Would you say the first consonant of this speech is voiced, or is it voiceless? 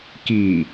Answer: voiceless